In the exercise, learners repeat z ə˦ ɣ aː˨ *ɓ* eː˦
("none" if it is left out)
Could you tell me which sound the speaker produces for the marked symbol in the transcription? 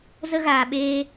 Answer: ɓ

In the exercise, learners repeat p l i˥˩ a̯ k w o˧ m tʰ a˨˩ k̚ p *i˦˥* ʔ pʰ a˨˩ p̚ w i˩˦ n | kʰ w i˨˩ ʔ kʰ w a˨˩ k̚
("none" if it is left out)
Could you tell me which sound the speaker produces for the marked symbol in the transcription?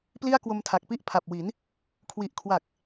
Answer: i˦˥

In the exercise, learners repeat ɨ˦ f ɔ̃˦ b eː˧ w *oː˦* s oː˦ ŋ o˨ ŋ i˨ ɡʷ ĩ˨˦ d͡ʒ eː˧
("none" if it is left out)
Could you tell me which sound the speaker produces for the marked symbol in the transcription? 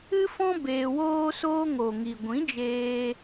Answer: oː˦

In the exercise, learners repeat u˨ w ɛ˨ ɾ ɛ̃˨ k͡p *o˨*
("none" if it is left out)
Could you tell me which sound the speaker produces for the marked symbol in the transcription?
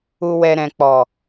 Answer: ɔ˨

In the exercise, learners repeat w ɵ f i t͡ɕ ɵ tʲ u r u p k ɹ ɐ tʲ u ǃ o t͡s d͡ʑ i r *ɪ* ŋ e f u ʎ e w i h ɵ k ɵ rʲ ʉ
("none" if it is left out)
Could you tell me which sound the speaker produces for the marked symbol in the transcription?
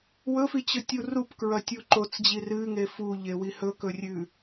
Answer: ɨ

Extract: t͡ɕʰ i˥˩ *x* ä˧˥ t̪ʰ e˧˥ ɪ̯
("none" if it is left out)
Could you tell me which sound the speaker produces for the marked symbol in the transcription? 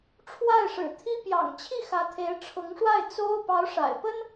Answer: x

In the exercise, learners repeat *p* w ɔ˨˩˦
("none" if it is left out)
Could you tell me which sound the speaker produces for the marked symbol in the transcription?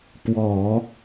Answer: p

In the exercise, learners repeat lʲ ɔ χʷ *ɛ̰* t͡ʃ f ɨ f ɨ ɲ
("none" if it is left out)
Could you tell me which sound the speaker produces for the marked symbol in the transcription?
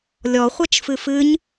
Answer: ɛ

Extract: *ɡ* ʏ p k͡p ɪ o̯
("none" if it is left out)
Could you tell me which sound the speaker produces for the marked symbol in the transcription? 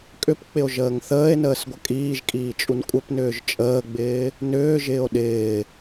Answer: kʼ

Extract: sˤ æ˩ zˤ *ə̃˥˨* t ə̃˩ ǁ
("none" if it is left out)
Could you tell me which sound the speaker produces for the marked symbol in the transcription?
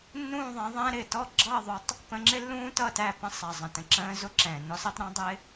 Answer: ə̃˩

